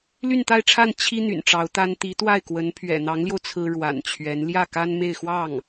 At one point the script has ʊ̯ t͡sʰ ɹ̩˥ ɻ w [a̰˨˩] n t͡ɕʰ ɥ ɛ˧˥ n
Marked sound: correct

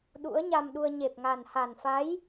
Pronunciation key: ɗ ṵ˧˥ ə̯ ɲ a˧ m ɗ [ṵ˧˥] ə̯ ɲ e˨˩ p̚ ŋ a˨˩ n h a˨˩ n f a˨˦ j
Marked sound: incorrect: u˧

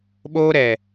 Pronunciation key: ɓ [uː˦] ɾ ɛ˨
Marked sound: incorrect: oː˦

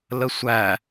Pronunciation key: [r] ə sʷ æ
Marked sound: incorrect: l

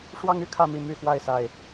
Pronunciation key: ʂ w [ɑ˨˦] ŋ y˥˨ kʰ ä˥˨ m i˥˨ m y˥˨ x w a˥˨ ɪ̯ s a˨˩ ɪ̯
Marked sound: incorrect: ɑ˦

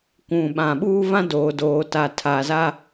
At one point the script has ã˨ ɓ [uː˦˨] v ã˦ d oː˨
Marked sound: incorrect: uː˦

